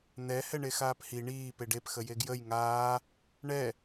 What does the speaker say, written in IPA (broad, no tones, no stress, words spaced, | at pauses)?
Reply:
n̪ɛ hɛɳexaːphi ɳiː peɖep xəjeɡjəj ŋaː | ɳɛ